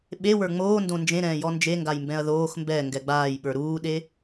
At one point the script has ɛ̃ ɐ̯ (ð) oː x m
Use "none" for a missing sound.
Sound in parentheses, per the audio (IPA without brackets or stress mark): ð